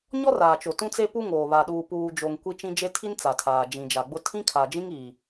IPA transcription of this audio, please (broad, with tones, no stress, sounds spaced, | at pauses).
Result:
ɲ ɔ˦ r aː˨ t͡ʃ o˨ t ũ˦ t͡s e˦ p u˦ ŋ oː˨ β a˨ ɗ uː˨ p uː˨ d͡ʒ o˨ ŋ kʷ i˦ t͡ʃ ĩ˦ d͡ʒ e˦ tʰ i˦ n t͡s a˨ tʰ aː˨ d͡ʒ ĩ˨ d͡ʒ a˨ ɡ͡b ʊ˦ tʰ ĩ˦ kʰ a˨ d͡ʒ ĩ˦ ŋ iː˨